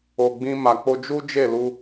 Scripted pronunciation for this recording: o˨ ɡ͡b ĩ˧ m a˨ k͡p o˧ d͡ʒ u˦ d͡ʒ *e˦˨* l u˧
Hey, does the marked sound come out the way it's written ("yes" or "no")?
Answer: yes